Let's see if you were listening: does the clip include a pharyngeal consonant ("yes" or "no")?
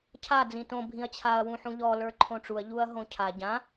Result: yes